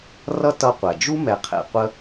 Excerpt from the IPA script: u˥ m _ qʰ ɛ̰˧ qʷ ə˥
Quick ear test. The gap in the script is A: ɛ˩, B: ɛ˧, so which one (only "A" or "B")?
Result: B